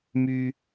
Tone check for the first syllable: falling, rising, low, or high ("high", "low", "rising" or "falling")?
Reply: high